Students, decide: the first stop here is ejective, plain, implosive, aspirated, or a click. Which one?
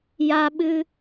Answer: implosive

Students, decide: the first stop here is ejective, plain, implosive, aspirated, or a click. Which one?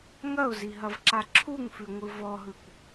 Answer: click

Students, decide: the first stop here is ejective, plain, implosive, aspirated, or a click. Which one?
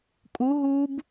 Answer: ejective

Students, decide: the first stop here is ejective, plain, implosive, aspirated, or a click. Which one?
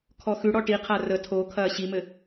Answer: aspirated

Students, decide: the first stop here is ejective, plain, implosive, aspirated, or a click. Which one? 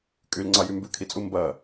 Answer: ejective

